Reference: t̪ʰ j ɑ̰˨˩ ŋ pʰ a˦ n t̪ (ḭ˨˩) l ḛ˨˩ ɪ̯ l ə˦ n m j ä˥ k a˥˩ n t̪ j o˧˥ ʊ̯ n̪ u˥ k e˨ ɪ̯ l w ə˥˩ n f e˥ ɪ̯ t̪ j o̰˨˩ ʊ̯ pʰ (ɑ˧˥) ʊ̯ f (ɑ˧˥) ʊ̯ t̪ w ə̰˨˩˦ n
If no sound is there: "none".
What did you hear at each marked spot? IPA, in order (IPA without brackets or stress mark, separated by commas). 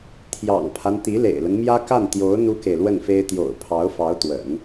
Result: i˧˥, ɑ˧˥, ɑ˧˥